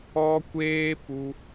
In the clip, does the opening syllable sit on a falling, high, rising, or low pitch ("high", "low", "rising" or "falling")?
high